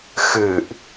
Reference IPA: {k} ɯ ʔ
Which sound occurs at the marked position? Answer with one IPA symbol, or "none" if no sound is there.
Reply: x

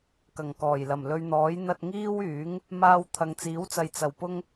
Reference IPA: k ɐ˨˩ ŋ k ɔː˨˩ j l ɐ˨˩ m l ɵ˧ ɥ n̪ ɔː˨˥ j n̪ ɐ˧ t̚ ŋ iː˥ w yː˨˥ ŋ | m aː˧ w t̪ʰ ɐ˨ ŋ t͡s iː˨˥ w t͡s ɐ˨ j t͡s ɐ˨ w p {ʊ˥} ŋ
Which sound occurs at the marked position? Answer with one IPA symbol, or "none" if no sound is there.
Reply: ʊ˥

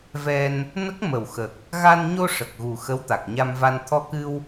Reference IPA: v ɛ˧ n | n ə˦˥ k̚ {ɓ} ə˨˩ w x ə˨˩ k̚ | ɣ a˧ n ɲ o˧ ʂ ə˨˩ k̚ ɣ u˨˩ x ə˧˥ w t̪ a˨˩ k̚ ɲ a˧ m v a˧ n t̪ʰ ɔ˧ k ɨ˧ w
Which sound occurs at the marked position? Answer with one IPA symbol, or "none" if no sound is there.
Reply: m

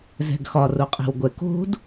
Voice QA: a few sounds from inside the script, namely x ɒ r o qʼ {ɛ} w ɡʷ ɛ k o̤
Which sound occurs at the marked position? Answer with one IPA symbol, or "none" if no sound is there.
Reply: ɛ̤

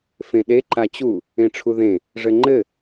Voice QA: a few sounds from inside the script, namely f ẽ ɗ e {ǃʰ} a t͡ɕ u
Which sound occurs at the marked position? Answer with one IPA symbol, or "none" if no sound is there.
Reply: ǃ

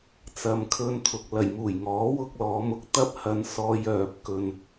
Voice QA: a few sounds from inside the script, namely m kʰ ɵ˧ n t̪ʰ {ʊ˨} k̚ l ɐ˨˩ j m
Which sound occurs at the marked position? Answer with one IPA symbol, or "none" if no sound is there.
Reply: ʊ˨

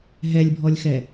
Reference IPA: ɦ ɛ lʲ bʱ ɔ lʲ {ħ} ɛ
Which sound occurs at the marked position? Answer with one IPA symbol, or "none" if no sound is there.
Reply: x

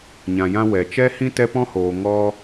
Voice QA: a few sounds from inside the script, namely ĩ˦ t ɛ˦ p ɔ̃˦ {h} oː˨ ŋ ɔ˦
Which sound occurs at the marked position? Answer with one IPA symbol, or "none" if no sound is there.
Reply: h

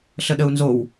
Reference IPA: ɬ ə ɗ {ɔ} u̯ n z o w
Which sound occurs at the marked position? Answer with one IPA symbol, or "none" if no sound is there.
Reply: ə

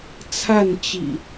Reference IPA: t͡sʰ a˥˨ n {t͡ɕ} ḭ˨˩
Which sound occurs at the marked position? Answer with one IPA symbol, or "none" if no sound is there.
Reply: t͡ɕ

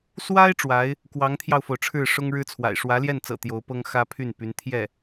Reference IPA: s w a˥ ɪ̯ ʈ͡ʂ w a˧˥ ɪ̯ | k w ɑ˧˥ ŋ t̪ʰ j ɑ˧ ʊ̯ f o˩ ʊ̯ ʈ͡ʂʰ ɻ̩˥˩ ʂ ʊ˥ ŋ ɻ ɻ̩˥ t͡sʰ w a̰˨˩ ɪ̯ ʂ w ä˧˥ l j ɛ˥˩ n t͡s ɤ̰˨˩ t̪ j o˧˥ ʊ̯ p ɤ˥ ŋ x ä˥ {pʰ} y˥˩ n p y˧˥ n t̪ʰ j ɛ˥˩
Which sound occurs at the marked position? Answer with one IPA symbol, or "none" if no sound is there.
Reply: pʰ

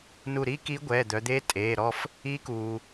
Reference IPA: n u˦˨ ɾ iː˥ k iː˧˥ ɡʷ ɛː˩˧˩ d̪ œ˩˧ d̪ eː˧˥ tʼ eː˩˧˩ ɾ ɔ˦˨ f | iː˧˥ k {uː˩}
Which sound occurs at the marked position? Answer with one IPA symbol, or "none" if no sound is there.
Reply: uː˩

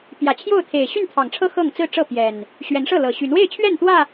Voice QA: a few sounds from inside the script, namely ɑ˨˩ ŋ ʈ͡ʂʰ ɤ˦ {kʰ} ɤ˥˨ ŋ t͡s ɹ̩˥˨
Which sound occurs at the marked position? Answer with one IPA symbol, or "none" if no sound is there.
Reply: x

